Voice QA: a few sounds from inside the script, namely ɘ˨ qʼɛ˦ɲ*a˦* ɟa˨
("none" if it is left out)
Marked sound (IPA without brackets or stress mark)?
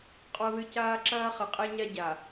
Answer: a˦